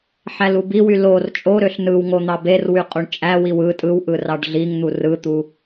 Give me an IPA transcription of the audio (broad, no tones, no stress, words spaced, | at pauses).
ħælubiwy lor t͡ʃʼoɾøɬ nɯwŋo n̪ɑberwy qʼuɳt͡ʃʼæwiw ɯ tʼɯwʔɯ rɑɖɮiŋn̪u rɯt̪u